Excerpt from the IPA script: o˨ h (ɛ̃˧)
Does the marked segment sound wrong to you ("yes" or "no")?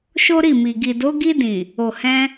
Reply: no